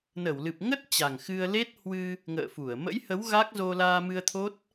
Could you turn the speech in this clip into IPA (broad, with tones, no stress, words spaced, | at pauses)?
nə˧˩wlɨ˨˩p̚ ŋə˦˥t̚ t͡ɕa˨˩ŋxɨ˧ə̯ le˦˥t̚hwɨ˧ | ŋə̰ː˧˨fu˧˩ə̯ mə̰˧˥jhə˨˦w ɣa˦˥k̚zo˧laː˧ mɨ˧ə̯ t̪ʰo˦˥t̚